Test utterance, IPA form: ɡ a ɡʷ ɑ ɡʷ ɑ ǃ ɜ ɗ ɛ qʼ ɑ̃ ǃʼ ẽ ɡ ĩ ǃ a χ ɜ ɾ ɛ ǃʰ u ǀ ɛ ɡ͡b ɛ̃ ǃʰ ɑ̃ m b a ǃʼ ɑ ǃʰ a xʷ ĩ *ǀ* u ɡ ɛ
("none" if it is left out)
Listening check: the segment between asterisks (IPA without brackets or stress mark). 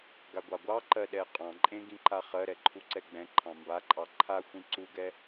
ǀ